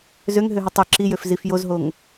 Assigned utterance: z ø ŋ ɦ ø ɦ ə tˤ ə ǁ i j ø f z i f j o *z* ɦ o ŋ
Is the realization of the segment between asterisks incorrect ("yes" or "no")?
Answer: no